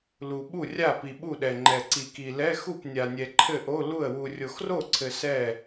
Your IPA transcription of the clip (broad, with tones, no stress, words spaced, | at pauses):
lu˨ɓu˥˩rʲa˥˩ pi˨ɓu˥˩ɗɛ˨ ŋ͡ǃɛ˨ǀi˨ki˨ lɛ˧˥˧xu˥˩pnʲa˨nʲɛ˨ ǃʰɘ˥˩ʔo˧˥˧lu˥˩ə̯ wu˨rʲo˨xro˥˩ǀʰɘ˨ sɛ˥˩